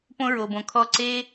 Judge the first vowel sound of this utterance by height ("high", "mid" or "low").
mid